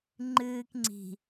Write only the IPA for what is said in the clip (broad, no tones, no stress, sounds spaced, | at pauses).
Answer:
ŋ͡ǃ ɨː k ŋ͡ǀ i̤